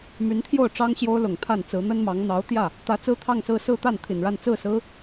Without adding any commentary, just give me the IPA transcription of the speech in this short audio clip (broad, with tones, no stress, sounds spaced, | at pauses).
m y˧˥ n t̪ʰ j o˥˩ ʊ̯ ʈ͡ʂ ɑ˥ ŋ ɕ j o˥ ʊ̯ l ʊ˨˩ ŋ t̪ʰ a˥˩ n t͡s ɹ̩˧˥ n̪ ə˥ n m ɑ˧˥ ŋ n̪ ɑ˧˥ ʊ̯ t̪ j ä˥˩ | t̪ ä˧˥ t͡s ɹ̩˥ t̪ʰ ɑ˥˧ ŋ s ɹ̩˥˧ s ɹ̩˥˧ t̪ a˥˩ n t̪ʰ i˨˩ n ɻ a˥˧ n t͡s ɹ̩˥˩ s ɹ̩˥